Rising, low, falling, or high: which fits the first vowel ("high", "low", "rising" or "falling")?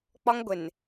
high